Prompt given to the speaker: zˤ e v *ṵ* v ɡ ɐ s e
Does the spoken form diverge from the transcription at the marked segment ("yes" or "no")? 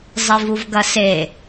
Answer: yes